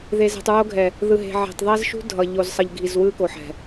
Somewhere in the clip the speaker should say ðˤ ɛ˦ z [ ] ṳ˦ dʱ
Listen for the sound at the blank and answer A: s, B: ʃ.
B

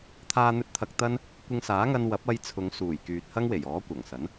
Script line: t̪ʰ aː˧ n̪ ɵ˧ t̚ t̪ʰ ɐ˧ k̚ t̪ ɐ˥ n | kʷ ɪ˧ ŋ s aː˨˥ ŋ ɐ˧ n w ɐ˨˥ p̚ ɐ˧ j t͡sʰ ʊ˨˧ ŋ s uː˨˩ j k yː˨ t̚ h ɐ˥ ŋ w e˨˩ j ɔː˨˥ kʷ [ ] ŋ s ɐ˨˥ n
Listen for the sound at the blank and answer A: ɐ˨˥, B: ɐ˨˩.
B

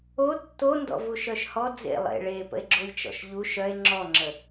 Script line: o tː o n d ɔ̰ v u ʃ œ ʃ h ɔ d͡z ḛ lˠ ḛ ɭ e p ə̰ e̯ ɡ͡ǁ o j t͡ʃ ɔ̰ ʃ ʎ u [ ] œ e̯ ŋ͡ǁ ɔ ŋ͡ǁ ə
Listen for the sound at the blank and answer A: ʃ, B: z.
A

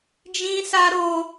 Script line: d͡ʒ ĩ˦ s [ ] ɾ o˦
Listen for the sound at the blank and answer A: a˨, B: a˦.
B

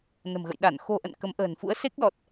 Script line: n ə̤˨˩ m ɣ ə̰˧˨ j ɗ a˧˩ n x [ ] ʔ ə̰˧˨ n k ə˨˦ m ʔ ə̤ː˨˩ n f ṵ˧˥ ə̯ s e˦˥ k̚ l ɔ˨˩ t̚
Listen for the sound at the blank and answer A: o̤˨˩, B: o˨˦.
A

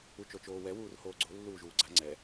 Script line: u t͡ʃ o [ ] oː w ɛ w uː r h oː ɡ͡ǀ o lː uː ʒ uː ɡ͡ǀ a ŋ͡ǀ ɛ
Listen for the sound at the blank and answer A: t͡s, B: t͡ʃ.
B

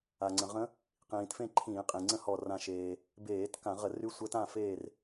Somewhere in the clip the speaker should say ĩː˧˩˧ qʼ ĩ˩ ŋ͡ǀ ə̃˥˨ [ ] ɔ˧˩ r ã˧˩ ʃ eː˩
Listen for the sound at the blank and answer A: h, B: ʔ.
A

